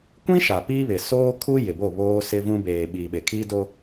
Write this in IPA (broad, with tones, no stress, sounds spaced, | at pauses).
kʷ ĩ˦ ʃ a˨ p iː˦ β ɪ˨ s oː˦ kʰ u˦ j ɪ˨ b o˦˨ β oː˦ s ɪ˦ v ũ˦ b eː˨ ɓ iː˨ ɓ e˨ kʰ iː˦ d o˦